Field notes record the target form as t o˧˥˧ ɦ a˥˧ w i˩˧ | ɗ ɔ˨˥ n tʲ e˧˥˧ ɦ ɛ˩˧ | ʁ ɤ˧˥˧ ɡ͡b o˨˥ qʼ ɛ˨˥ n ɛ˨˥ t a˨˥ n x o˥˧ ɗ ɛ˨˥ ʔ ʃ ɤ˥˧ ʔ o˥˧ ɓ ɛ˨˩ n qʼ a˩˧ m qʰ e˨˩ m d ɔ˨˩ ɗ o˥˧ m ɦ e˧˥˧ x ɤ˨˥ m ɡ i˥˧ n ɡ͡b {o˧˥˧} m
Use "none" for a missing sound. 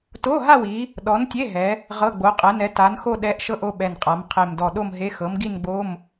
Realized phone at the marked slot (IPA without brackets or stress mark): o˧˥˧